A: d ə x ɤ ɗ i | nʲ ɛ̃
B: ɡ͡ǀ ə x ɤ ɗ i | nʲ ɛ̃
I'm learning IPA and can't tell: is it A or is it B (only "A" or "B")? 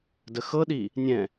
A